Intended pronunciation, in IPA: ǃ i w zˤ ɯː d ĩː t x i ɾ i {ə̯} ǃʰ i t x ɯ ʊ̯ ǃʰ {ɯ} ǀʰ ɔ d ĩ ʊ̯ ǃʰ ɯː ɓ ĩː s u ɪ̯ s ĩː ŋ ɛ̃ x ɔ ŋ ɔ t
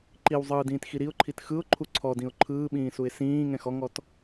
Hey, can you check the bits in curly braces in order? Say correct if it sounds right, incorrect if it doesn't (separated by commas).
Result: incorrect, incorrect